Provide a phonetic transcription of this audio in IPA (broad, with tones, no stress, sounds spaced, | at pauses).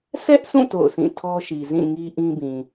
s ɛ˦ ʔ sʰ ũ˦˨ t o̰˦˨ ʊ̯ s ĩ˦˨ tʰ ɔ˦ ʃ i˨ z ĩ˦˨ ŋ i˦ ʔ ĩ˦ b ĩ˨